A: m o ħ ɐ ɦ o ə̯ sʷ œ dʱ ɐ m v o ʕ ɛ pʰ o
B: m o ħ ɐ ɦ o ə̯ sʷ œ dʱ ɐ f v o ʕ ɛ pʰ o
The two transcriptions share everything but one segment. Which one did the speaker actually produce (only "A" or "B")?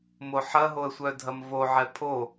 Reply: A